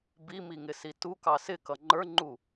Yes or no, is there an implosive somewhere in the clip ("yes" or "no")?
no